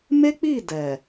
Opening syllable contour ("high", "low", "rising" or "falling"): high